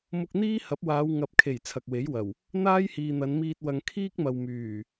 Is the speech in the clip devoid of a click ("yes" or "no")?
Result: yes